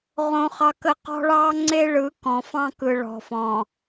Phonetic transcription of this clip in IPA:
ʁ õ˦ χ ɑ˦ k ə˦ q ɔ̤˦ ɭ ɑ˦ ŋ͡ǀ e˦ ɭ ɯ˨˦ k ɔ̃˨ f ɑ̃˦ k ɯ˨ ɭ ɔ̤˨ f ɔ̃˨

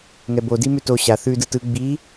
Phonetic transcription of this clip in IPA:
ŋ ɛ b o d i m ʉ t o ɕ a θ ʉ d ɯ t ɯ ɡ͡b i

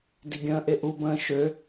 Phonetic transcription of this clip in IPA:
d i ɡʲ ə̃ː ʔ e ʔ u b ə̃ː ʃ ø

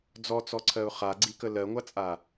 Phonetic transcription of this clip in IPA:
d͡z ɔ t͡s ɔ ǀʰ ɜ ʊ̯ χ a ɡ͡ǀ i k ə l ɜ ŋʷ a t͡sʼ a

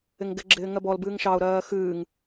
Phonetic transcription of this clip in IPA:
ɪ ŋ ɡ ɪ ɡ͡ǁ ɪː ŋ ɜ b ɔ l b ɨː ŋ ʃ ɑ ʊ̯ ɾ ɜː x ɨː ŋ

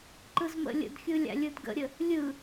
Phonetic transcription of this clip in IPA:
ǃ ɯ z m ə̰ lʲ ə̰ d xʲ ɯ lʲ a̰ lʲ ɯ d ɡ ə̰ ɾʲ ə | lʲ ɯ

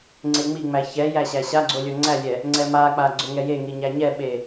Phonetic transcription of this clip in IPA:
ŋ͡ǀ e ŋ͡m i ŋ͡m æ ç ɛ j æ ɕ æ ɕ a ɡ͡ǀ o lʲ o ŋ͡ǀ æ lʲ ɛ | ŋ͡ǀ ɛ m a k͡p a ɡ͡ǀ o ŋ ɛ j e ŋ i ɲ æ ɲ ɛ ɓ e

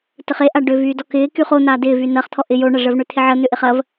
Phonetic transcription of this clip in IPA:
t ə χ e ʔ a ɖ ʏ v yː d ɔ k ɪː k y χ o n̪ aː d ɪː v y n ɐ χ t̪ʰ ɔ ʔ ɪ j o ɳ ɐ ʐ əː v ɳ ʏ t̪ʰ ɪ ʕ ə n̪ ʏ ʔ ɪ χ ɐ v

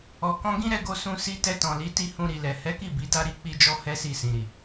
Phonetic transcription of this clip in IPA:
ɔ˨ k ɔ̃˧ ɡ ĩ˦ ɾ ɛ˧ ɡ o˧ s ũ˧ s i˧ t ɛ˧ t ɔ̃˨ l i˨˦ t i˦˨ h ũ˧ ɾ i˨ l ɛ˨ h ɛ˨˦ k i˦˨ b i˨˦ d a˦ ɾ i˦ k͡p i˦ d͡ʒ ɔ˦ h ɛ˦ s i˦˨ s ĩ˨ ɾ i˨

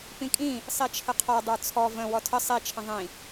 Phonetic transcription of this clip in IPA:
p ĩ kʼ ĩ | sˤ i t͡ʃʰ ə qʰ ɔ dˤ ə˞ t͡sʰ ɔ v ə̃ w ɔ tʰ ə sˤ i t͡ʃʰ ə̃ ðˤ ĩ

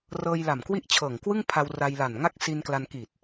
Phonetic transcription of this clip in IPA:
r ɤː˧ j l a˨˩ m k w i˥˩ ʔ t͡ɕʰ ɤː˨˩ ŋ k w ɯ˥˩ ŋ pʰ a˧ w r a˧ j l a˨˩ n ŋ a˥˩ k̚ s i˧ n k l a˧ n k i˨˩ t̚

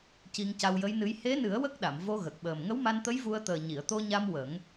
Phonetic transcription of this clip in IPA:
c i˧ ŋ c a˧ w j ə˧˥ j n ɨ˧˥ j h e˧˥ n ɨ˨˩˦ ə̯ w ə˦˥ k̚ ɗ a˨˩˨ m v o˧ ɣ ə˨˩ k̚ ɓ əː˨˩ m ŋ ə˧˥ w m a˧ n t̪ ə˧˥ j v u˧ ə̯ t̪ əː˨˩ ɲ i˨˩˨ ə̯ t̪ o˧ ɲ a˧ m w ə˨˩˦ ŋ

